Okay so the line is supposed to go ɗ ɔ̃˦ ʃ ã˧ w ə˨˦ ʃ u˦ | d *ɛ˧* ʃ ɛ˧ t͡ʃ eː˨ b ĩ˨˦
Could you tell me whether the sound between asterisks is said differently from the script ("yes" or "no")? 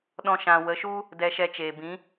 no